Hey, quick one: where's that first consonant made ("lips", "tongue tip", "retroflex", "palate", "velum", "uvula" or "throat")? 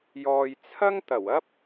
palate